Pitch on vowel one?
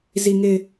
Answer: low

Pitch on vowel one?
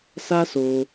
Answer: high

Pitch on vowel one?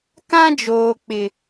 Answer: high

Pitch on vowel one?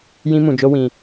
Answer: high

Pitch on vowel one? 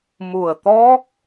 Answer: low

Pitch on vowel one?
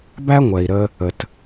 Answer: high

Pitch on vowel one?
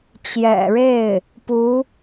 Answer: low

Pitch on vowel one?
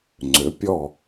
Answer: rising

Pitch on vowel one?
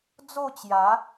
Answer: falling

